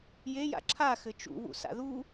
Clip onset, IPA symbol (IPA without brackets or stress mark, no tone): j